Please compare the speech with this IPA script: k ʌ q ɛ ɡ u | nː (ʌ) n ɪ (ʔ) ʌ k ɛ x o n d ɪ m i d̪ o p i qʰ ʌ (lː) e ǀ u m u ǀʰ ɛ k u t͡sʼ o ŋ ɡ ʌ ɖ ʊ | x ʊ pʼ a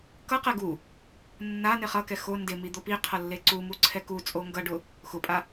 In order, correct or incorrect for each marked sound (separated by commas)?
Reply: incorrect, incorrect, correct